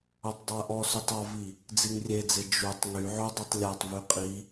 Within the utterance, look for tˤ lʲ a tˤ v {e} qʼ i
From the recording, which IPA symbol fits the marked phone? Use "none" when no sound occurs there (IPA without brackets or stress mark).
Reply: y